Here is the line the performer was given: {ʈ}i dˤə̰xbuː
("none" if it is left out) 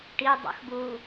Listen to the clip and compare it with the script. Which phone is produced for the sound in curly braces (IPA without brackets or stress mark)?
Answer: ʈ